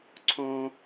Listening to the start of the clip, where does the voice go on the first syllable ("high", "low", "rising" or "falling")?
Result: high